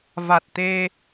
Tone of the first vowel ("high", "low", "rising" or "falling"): low